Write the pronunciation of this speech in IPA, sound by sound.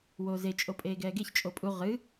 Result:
w oː z e t͡ʃʼ o pʼ eː ɡ ɛː ɡ e ç t͡ʃʼ o pʼ u ʁ ɨ

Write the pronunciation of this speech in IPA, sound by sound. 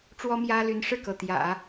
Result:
ʈ͡ʂ w ɔ˥ m j ä˥ l y˧˥ n ʂ ɻ̩˥˩ k ɤ˩ t̪ j ä̰˨˩˦

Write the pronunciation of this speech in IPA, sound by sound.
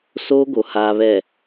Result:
s oː˦ ɡ o˨ h aː˨ β ɛ˨

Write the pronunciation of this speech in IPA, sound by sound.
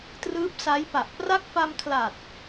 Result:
t r ɯː˦˥ p̚ s a˦˥ j p a˨˩ ʔ p r a˦˥ k̚ f a˧ m kʰ l a˨˩ t̚

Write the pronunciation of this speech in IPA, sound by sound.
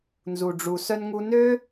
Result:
n z u˩ ɖ͡ʐ u˩ s œ˧ n ŋ u˧ n ø˥

